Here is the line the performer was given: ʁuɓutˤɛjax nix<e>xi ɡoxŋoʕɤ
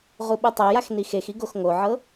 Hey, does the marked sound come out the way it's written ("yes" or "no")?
yes